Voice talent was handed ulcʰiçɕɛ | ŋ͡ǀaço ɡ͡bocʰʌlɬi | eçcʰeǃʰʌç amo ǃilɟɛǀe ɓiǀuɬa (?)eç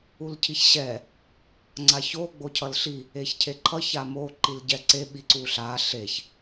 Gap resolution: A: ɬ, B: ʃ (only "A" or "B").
A